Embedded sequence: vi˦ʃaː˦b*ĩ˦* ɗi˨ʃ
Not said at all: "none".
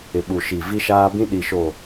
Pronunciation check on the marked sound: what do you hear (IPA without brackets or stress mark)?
ĩ˦